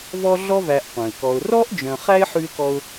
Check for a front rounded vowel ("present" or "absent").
present